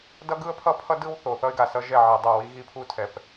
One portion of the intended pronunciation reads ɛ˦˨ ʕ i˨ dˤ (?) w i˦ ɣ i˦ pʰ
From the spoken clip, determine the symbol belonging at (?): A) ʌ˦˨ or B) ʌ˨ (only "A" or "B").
A